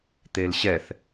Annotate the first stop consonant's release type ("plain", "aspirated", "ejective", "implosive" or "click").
plain